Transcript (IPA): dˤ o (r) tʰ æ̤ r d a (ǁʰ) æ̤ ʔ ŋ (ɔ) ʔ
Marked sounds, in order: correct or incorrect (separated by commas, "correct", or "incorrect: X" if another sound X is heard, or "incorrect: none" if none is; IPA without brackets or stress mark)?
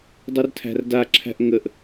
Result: correct, correct, incorrect: ə